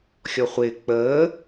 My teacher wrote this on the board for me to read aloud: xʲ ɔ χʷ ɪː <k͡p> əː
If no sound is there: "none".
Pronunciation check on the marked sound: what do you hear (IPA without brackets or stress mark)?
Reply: k͡p